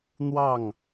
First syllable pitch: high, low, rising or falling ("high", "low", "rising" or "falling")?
falling